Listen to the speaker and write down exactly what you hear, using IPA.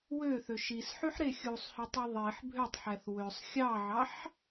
w ø θ ø ʃ i s ħ y ħ ɾ e xʲ u sˤ h ø tˤ i ðˤ i ħ bʱ ø tˤ ħ æ θ w ø sˤ xʲ ɑ ʕ ɑ ħ

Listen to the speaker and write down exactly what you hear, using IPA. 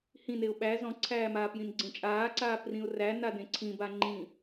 h ĩ n e ʊ̯ ɓ æ z ɔ̃ ǀʰ æː m aː p j ĩ n ɡ͡ǀ ẽ t͡ʃʼ aː ǀ aː p r ĩ ʊ̯ r æ n a d ẽ ǀʰ ĩ b a ŋ͡ǃ ĩ

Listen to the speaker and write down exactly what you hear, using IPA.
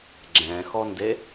ɡ͡ǁ ɛ̃ x ɔ n d e

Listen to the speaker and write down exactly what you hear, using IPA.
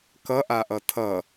k ʌ ʔ a ʔ ʌ tʰ ʌ

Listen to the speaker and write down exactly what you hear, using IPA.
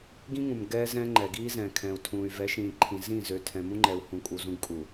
ɡ ĩ˦ ŋ ũ˨ m ɡ ɛː˦ z ɛ̃˦ ŋ͡ǃ ɛ˨ ɡ iː˦ z ɛ̃ː˨ kʰ ɛ̃˨ u̯ tʰ ũː˨ y̯ v ɛ˨˦ ʃ ĩː˨ ǃʰ ĩ˨ z ĩ˦˨ z ø˨ tʰ ɛ̃˨ m ũ˦ ŋ͡ǃ ɛ˨ u̯ h ũ˨ kʼ u˨ z ũ˦ ɡ kʼ u˨

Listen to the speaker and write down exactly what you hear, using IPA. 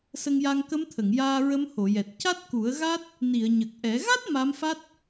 s ə˧ ŋ j a˧ ŋ k ə˧˥ m t̪ʰ ə˨˩˨ ŋ j aː˧ ɹ ə˧˥ m h o˨˩˨ j ɛ˨˩ t̚ c a˦˥ t̚ k u˨˩˦ ə̯ ɣ a˦˥ t̚ | n i˨˩˨ ə̯ ɲ ə˨˩ k̚ ʔ ɛ˨˩˦ ɣ a˦˥ t̚ m a˧˥ m f a˦˥ t̚

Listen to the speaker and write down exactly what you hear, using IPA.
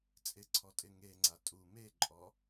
t͡sʼ ɪ ǀʰ ɔ tʼ ɪ ŋ e ŋ͡ǀ a tʼ u m e ǃʼ ɔ

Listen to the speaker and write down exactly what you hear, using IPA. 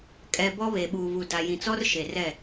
kʼ ɛ˨ b ɔ˦ β e˨ ɓ uː˨ v u˨ d a˨ j ĩ˨ t͡s ɔ˦ r ʃ e˨ r ɛ˦˨

